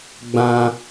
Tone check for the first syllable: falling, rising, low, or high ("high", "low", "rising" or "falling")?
high